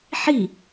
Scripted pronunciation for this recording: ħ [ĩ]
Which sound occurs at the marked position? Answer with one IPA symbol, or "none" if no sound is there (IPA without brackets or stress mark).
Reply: i